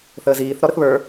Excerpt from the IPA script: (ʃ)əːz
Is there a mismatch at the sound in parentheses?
yes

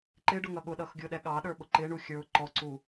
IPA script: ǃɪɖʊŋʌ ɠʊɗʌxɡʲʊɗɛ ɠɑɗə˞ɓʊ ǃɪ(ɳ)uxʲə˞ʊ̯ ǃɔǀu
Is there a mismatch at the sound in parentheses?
no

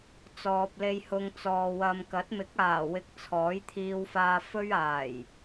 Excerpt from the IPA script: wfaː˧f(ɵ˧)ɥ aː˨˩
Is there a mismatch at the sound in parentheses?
yes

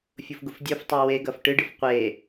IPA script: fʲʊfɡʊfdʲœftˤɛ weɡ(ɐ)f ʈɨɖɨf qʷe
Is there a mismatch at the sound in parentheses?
no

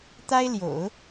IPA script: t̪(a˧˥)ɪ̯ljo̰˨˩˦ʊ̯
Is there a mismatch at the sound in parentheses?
yes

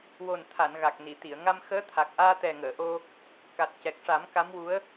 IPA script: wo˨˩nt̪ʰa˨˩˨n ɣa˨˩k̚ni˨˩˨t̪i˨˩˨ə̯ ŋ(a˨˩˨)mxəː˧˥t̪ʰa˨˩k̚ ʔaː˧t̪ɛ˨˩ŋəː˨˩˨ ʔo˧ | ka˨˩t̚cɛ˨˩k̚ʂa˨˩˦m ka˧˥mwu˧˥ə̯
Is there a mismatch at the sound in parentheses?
yes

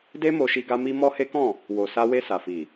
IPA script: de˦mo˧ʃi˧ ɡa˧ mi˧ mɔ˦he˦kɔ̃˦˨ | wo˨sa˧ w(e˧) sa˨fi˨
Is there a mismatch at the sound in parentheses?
no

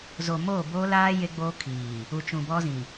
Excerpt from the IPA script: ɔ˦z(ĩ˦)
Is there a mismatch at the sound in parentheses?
yes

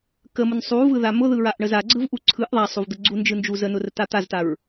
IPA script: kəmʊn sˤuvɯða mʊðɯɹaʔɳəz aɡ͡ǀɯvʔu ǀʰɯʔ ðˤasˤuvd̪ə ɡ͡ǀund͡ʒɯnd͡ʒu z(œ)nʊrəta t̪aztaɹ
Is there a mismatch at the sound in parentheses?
yes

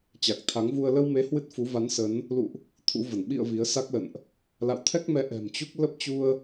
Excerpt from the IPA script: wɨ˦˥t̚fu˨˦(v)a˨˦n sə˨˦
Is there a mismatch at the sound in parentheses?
no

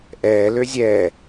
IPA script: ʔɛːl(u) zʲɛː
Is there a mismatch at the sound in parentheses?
yes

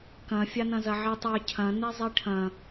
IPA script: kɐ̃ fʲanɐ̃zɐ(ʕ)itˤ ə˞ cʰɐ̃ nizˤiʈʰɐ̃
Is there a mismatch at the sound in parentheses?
no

